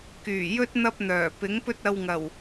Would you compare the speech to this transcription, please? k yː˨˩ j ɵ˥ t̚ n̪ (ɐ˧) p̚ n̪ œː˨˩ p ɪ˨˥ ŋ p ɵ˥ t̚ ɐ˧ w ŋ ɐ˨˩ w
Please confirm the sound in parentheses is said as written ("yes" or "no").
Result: no